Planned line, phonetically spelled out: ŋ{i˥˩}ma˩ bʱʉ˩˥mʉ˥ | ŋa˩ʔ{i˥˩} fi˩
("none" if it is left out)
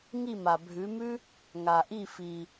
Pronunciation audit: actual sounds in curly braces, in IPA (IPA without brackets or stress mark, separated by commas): i˥˩, i˥˩